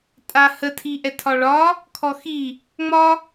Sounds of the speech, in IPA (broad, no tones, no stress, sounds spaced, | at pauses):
tʼ a h ə tʰ i ʔ ɛ tʰ ɒ ɭ ɒ | kʰ ɔ x i | ŋ͡m ɒ